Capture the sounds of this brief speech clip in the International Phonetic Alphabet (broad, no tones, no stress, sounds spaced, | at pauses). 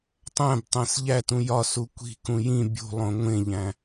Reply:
tˤ æ̃ b tˤ æ̃ s ʎ æ t ũ j ɒ s u kʷ i̤ k ũ j ĩ bʲ ṳ lˠ õ ŋʷ ẽ ʎ æ̃